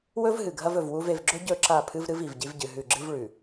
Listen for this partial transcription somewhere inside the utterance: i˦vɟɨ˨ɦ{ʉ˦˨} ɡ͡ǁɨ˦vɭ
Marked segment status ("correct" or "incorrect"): correct